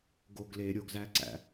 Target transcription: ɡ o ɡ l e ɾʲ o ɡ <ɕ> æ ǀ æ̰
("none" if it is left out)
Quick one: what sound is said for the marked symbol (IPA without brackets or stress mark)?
z